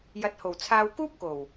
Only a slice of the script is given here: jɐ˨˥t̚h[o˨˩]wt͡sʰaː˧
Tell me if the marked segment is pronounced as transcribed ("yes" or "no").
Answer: yes